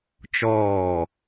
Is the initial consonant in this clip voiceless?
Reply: yes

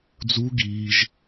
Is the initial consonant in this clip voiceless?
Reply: no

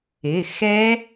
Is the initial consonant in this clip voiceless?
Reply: yes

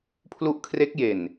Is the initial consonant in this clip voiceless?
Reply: yes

